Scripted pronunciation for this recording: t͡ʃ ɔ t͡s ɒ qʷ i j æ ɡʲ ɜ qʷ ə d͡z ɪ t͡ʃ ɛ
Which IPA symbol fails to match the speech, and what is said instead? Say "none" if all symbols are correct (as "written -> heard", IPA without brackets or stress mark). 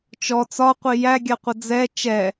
ɪ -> ɛ